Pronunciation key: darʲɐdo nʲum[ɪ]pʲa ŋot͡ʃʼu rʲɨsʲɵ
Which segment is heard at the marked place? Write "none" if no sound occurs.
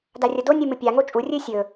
ɨ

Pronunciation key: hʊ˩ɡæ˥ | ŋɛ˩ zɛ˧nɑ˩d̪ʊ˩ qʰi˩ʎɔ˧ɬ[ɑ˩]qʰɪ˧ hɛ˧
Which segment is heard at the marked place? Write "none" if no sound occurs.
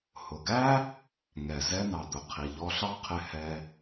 ɑ˥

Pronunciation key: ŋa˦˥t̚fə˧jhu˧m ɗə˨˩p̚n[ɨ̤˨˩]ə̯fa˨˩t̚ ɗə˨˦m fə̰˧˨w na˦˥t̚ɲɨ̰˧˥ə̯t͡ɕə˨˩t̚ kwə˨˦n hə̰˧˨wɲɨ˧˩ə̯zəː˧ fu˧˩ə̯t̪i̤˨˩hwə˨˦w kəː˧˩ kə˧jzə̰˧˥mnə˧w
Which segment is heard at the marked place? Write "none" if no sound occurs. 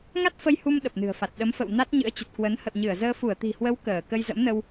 ɨ̤˨˩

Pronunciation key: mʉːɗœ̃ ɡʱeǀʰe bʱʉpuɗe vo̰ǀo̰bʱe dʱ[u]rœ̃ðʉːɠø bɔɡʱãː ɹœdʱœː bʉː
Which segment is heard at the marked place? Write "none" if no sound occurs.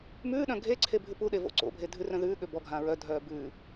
ʉ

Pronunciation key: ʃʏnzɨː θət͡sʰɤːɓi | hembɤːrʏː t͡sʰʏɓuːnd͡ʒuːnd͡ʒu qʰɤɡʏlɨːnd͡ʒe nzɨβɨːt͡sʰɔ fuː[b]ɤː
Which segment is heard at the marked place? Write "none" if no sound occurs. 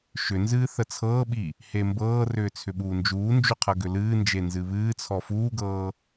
ɡ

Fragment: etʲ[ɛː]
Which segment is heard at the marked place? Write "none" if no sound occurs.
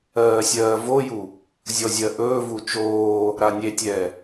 ɛː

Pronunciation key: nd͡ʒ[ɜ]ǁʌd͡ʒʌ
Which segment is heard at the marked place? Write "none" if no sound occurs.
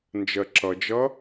ɜ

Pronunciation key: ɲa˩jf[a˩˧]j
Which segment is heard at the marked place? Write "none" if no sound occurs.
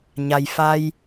a˧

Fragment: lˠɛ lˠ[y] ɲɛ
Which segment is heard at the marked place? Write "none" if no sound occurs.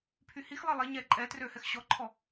e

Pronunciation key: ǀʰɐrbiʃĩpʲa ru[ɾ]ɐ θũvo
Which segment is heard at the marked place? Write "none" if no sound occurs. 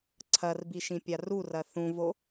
r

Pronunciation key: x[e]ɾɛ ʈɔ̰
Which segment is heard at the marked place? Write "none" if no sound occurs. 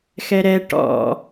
ɛ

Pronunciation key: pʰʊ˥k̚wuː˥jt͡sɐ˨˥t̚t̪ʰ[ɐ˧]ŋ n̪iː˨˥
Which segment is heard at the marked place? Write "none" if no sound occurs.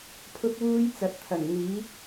ɐ˨˩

